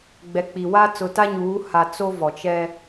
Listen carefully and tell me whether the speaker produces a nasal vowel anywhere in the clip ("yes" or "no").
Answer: no